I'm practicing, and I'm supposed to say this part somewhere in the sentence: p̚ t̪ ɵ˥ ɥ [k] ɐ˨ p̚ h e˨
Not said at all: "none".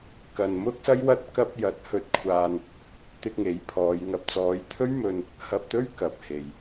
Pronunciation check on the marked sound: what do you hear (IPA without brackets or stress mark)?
k